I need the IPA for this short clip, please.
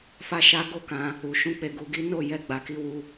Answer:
fa˦ʃa˦ ɡo˦˨kã˧ | u˨ʃũ˨˦ k͡pe˧ɡu˧ɡi˦ no˦˨jɛ˧ ɡ͡ba˨ki˧wu˧

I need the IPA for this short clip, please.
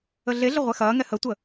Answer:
əɮeɮə ʁʷɛxɐːŋɛ hətʷə

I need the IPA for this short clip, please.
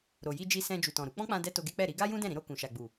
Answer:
ɾo˨ ji˧d͡ʒi˧ sɛ̃˧ d͡ʒu˨tɔ̃˨ɾu˨˦ k͡pɔ̃˦k͡pã˧dɛ˧ to˧ɡe˦k͡pɛ˦˨ ɾi˧ɡa˦ jũ˦dɛ̃˦˨ ɾĩ˧ɾo˧ kũ˨ʃa˨ɡ͡bu˨

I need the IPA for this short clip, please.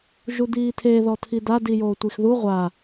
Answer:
ʒud̪iːt̪ʰe ðɔt̪ʰid̪a dijoːtʷixðu ʁʷa

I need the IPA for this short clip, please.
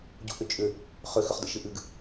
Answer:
ɟṵʔʏt͡ʃʼʏ | χʏ xʏχdə̰ʃɨʔɨɡ

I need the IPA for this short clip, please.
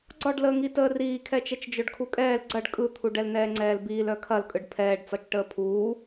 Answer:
ɡ͡ǀɒɖləːŋi təːriːkʰɛt͡ʃɛt͡ʃ d͡ʒœɖkʰukʼɛːl ɡ͡ǀɐɖ kʼɯt̪ʰu ɖɛlnɛːŋ͡ǀɛːlbiːl œkʰɐlkʼɯɖ pʰɛːɖt͡sɒt͡ʃʈəː pʰuː

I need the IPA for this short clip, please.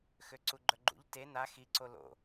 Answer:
xøǀuɡ͡ǃœɡ͡ǃṵʎ te na xiǀo lo̰

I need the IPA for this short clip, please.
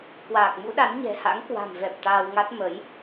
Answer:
kwaː˨˩k̚mṵ˧˥ɗa˨˦n ɲɛ̤˨˩ha̰˧˥ŋkwa̤˨˩mvɛ˨˩p̚ t̪aː˧wŋa˦˥t̚ mə˨˦j

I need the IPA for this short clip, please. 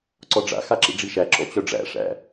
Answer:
ǀɔɖ͡ʐa̰ xaǁḭɖ͡ʐiʃæ ǁɔ̰t͡ɕœɖ͡ʐæ̰ ʂæ̰

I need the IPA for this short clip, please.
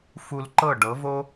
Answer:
fu˧lǃɤ˥˩ɖɤ˩˥vo˥

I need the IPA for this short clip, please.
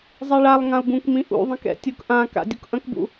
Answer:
zˤeɭalˠ ŋãu̯bũkmĩ ʔṵðˤĩkɛ̰ tʲukʔãka̰ dʲukʔɐ̃kbṵ

